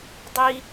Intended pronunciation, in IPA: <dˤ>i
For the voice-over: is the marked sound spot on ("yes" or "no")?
yes